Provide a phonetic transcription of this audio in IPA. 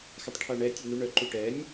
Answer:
x a tˤ ʈʰ a ɳ ɛ tʲ œ n u ɳ œ ǃ u ʈ ɛ nʲ

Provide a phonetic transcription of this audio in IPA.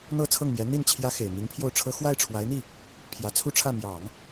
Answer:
n̪ ɤ˥˧ t͡sʰ ɤ˥˩ ŋ m j ɛ˧˥ n̪ i˥˩ n t͡ɕʰ j ä˥ x e˨˩ ɪ̯ m i˧˥ ŋ pʰ j o˥˩ ʊ̯ ʈ͡ʂʰ ɤ˥ x w a˥˩ ɪ̯ ʈ͡ʂʰ w a˧˥ ɪ̯ n̪ i˥˩ | pʰ j ä˧˥ t͡sʰ u˥˧ ʈ͡ʂʰ ä˥˩ m j ɑ˨˩˦ ŋ

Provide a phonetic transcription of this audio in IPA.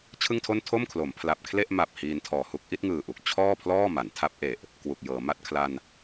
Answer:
t͡ɕʰ ɯ˥˩ ŋ tʰ o˥˩ n tʰ o˥˩ m kʰ l o˩˦ m pʰ l a˨˩ p̚ kʰ l e˥˩ ʔ m a˨˩ p̚ h iː˧ n tʰ ɔː˨˩ h u˥˩ k̚ ʔ i˥˩ t̚ ŋ ɯː˨˩ ʔ u˨˩ k̚ t͡ɕʰ ɔː˥˩ pʰ l ɔː˥˩ m a˩˦ n tʰ a˦˥ p̚ ʔ e˨˩ ʔ | k w u˨˩ k̚ j ɤː˩˦ m a˥˩ t̚ kʰ l a˧ n

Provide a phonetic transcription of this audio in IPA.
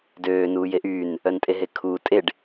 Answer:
d øː n uː j e ʔ y n | œ n tʼ e ɦ e kʰ uː tʼ e ɖ

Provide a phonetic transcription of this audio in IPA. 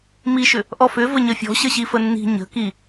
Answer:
m i ʃ ʏ | ʔ ɔ f ʏ v ə ɲ ə fʲ ɔ̤ ɕ ə ɕ i f ə nː i̤ ɲ ə̤ k i

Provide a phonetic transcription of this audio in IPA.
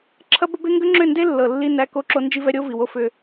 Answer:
ǁʰ ɐ˦ b ə˦ b e˦ ŋ ɡ ʏ˦ ŋ͡ǁ ʏ˦˨ n d e˦ lː ɤ˨ lː i˦ n æ˦ k o˦ ǁ o˦ n d͡ʒ i˦ v ɛ˦ ɾʲ o˦ v i˨ w o˦ f ʏ˦

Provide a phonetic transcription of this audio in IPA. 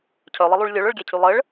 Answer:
cʰ œ lˠ ɪ lˠ y ɭ lʲ ø ɭ œ ɭ ɡʲ ɛ cʰ y lˠ ə ɭ

